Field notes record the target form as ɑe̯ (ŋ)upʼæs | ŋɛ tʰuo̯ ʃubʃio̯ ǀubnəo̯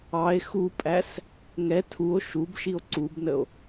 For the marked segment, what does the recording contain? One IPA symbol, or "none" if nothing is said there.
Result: x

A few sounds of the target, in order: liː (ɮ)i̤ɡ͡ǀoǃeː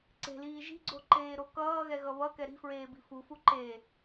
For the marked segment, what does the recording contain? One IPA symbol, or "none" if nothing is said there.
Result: ʒ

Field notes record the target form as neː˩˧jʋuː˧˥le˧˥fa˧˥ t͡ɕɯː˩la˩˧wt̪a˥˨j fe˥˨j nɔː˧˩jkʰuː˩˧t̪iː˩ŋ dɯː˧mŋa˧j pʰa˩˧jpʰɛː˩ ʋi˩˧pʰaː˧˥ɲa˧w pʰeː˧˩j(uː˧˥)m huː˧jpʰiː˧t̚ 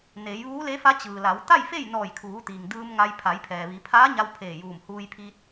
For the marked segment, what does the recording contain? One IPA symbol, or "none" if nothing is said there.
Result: uː˧˩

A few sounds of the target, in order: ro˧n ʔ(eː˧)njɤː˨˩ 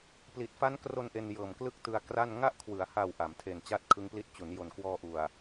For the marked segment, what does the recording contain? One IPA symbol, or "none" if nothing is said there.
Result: e˧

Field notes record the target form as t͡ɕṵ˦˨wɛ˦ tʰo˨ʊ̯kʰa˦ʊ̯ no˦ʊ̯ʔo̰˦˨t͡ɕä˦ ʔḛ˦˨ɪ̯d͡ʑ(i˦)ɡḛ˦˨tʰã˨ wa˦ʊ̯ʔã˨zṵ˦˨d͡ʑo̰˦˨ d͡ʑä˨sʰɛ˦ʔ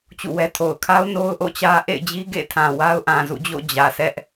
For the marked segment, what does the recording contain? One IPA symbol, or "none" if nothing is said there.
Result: i˦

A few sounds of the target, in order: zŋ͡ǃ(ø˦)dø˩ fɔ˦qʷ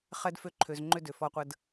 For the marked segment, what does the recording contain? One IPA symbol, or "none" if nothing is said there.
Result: ø˦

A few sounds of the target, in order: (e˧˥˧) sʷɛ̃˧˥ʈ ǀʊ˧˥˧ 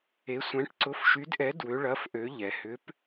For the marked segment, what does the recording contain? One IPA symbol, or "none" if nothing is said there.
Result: e˧˥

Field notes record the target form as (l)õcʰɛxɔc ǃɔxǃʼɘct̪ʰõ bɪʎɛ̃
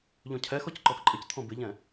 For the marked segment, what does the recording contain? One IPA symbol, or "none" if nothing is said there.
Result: ʎ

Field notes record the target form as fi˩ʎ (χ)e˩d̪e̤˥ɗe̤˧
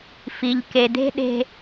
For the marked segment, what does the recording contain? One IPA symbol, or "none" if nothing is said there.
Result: k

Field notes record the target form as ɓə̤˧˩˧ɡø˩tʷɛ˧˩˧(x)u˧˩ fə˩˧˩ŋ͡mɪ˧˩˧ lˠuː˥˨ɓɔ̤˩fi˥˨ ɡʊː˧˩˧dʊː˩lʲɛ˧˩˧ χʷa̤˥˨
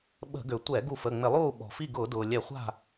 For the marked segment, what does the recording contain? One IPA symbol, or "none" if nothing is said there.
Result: ɡ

